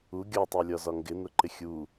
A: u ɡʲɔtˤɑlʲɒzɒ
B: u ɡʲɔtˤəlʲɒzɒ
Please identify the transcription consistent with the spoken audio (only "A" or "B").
A